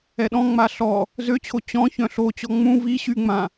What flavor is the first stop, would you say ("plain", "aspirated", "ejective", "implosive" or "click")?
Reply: implosive